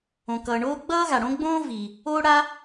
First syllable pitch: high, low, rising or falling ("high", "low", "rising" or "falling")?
low